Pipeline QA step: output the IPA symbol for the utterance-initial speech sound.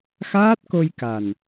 x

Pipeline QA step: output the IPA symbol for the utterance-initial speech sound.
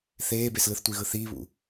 θ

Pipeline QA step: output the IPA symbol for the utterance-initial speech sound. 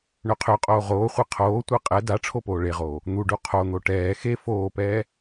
ɳ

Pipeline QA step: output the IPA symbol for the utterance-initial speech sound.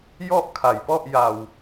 j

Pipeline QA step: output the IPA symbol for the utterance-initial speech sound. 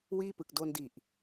w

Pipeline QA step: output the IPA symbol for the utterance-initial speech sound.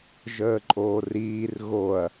ʒ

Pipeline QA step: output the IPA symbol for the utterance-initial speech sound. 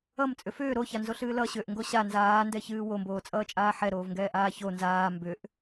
ʌ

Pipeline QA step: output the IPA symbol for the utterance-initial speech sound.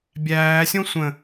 bʲ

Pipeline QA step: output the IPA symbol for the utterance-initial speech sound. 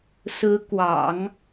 s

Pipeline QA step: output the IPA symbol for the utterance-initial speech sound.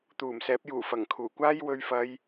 t̪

